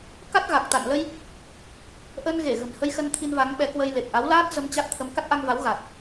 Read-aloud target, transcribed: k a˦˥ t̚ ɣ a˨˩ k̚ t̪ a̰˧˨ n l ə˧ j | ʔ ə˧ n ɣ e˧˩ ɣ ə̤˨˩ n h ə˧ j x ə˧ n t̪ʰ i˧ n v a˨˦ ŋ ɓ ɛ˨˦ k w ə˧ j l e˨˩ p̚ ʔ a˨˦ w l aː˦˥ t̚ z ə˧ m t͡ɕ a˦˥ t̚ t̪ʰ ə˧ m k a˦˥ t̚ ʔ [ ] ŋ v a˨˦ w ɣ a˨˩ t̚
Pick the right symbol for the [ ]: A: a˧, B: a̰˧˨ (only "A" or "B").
A